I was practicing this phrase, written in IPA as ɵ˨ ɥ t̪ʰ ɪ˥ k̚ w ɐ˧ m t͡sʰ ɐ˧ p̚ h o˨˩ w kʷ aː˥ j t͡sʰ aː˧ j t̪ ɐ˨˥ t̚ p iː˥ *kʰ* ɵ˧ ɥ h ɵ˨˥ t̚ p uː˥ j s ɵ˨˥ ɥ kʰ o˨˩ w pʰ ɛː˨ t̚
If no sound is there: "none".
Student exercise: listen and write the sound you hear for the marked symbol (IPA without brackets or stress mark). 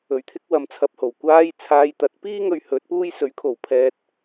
ŋ